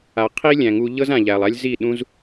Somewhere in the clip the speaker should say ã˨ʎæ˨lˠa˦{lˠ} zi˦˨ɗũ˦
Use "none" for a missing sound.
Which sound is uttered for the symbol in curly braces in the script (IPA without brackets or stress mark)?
lʲ